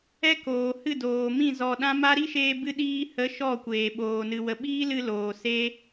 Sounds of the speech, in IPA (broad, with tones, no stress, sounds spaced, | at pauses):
ɛ˦ k oː˨ h ɨ˦˨ d oː˨ m ĩ˦˨ z ɔ˧ ɗ ã˦ m a˦ ɾ i˦ ʃ eː˧ b ɨ˧ ɗ iː˧ h ə˨˦ ʃ ɔ˦˨ kʷ eː˨ ɓ oː˨ n ɨ˨ w ə˨ ɓ iː˦ l ɨ˧ l oː˨ s e˦